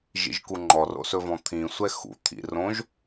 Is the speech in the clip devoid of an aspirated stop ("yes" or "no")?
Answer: no